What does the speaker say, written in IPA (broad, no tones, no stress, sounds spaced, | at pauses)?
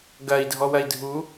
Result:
ɡ ɐ i̯ dʱ ɔ w ɐ i̯ dʱ u